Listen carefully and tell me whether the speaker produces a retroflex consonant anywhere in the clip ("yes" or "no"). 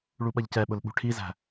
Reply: yes